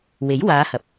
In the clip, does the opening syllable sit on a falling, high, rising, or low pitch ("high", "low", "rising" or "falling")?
rising